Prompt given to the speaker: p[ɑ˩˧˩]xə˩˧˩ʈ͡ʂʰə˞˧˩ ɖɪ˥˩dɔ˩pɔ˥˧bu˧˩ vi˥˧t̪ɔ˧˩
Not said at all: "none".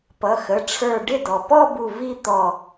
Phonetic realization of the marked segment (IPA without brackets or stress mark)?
ʌ˩˧˩